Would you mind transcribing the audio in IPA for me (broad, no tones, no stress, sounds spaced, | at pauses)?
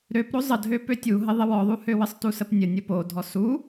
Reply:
ɾ ø p ɾ o zˤ ə dʱ ø p ø tʲ u ɦ ə ðˤ ə w ɔ ðˤ u h ø w ə sˤ t u s ə p nʲ ə nʲ o p o dʱ ɔ s u